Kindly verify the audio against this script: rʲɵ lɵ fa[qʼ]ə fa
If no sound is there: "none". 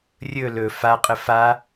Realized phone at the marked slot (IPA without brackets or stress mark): qʼ